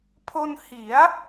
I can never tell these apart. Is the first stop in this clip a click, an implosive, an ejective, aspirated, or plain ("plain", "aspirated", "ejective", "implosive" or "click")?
aspirated